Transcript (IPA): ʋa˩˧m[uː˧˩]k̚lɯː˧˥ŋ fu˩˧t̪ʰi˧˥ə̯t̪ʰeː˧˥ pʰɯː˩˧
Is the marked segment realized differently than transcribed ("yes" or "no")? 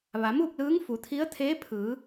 yes